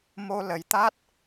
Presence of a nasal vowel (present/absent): absent